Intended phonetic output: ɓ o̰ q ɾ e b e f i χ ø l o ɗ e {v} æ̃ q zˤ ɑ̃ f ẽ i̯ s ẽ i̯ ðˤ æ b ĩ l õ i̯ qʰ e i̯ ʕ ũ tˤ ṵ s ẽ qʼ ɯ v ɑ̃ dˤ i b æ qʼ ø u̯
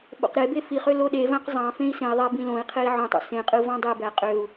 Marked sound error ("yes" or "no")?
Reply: no